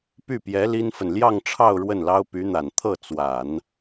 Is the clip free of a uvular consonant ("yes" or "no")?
yes